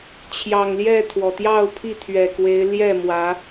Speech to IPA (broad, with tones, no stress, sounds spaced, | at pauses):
t͡ɕʰ j ɑ˨˩ ŋ l j ɛ˥˨ t̪ʰ w ɔ˩ t̪ j ɑ˥˨ ʊ̯ pʰ i˥˨ t̪ʰ ɥ ɛ˨˩ k w e˨˦ ɪ̯ l j ɛ˥˨ m w ä˨˦